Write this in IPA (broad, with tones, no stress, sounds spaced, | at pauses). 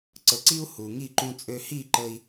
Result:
ǀ ə˧ ǀ i˦ u̯ h u˨ ŋ i˦˨ ǃ ũ˧ t͡sʼ ø˧ h i˦˨ ǃ ə˧ i̯